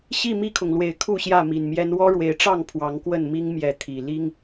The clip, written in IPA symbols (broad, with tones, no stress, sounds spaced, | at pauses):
ɕ i˥˨ m i˥˨ kʰ ʊ˩ ŋ l w e˨˩ ɪ̯ kʰ u˥˨ ɕ j ä˥˨ m i˨˩ n m j ɛ˦ n w ɔ˦ ɻ w e˨˦ ɪ̯ ʈ͡ʂ ɑ˥˨ ŋ pʰ w ɑ˨˦ ŋ k w ə˥˨ n m i˦ ŋ m j ɛ˨˦ t̪ʰ i˨˩ l i˦ ŋ